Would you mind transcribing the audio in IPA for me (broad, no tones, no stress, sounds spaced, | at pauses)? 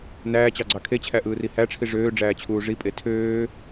n æː t͡ɕ ɑ ɡ͡ǀ ɑ kʰ e t͡ɕʰ æ ʔ ɯː r i h æ ʈ͡ʂʰ i ʐ øː ɖ͡ʐ æː t͡ɕʰ uː ʐ i pʼ e tʰ øː